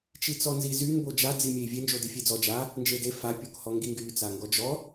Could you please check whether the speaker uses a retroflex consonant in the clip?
no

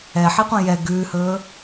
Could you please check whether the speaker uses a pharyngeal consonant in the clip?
yes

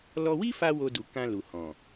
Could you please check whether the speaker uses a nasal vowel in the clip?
yes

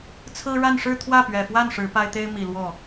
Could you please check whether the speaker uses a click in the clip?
no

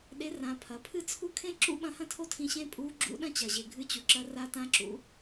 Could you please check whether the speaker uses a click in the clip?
yes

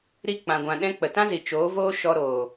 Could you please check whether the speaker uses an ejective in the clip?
no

